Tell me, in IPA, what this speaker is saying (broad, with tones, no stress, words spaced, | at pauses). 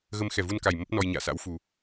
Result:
ɣə˧mxɛ˨˩vu˧nka˨˩j mə˦˥p̚nɔ˧jɲa̰ː˧˨sa̰˧˥w fu˨˩